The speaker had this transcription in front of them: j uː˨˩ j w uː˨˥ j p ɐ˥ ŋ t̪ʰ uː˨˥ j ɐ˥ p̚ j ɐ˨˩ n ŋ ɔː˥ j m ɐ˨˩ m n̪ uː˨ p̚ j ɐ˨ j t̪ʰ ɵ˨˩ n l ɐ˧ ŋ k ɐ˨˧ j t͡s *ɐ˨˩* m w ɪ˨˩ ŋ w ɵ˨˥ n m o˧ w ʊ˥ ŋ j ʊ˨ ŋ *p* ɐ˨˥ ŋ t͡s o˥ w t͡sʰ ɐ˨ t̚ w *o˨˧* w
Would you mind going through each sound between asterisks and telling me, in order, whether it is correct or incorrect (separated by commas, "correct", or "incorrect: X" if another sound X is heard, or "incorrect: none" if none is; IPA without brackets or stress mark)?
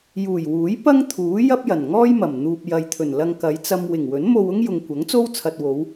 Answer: incorrect: ɐ˧, incorrect: kʷ, correct